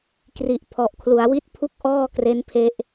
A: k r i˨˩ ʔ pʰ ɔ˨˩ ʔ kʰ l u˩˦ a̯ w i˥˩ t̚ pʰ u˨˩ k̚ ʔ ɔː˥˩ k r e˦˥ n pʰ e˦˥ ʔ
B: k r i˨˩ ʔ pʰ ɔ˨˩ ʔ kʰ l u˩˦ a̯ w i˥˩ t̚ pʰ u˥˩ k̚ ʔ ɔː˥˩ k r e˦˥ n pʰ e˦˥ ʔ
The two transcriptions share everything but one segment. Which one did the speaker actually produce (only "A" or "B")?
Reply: B